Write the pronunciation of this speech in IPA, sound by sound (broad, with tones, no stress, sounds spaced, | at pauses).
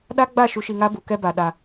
ɗ a˦ ɡ͡b a˦˨ ʃ u˨ ʃ i˨ ŋ a˦ b u˨ k ɛ˦ b a˨ ɗ a˨